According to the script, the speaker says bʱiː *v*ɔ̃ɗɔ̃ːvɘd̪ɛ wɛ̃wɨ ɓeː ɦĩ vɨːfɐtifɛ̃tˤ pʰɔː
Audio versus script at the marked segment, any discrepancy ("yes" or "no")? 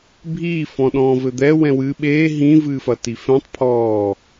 yes